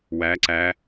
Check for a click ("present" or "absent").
present